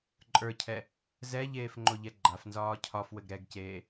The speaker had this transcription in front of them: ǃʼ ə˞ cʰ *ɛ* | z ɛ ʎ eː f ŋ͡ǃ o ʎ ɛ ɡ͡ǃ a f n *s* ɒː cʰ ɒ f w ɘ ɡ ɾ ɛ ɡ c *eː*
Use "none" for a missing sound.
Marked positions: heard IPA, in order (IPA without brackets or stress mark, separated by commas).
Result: ɛ, z, eː